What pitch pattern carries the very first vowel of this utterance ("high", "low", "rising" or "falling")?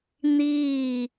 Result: falling